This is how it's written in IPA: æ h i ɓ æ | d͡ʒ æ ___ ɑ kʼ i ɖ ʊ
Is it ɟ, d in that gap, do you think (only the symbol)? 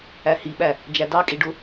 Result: d